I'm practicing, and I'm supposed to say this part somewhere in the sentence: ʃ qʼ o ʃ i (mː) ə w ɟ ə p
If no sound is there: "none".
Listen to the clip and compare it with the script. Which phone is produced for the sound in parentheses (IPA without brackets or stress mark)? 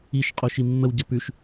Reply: mː